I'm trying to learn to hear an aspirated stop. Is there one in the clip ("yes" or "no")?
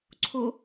yes